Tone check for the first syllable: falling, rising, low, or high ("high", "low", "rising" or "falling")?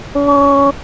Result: high